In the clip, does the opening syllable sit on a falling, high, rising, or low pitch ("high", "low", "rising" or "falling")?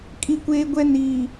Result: high